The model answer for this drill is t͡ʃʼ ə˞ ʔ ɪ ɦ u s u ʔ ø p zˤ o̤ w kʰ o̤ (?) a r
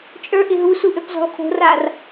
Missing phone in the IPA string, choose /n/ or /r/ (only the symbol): r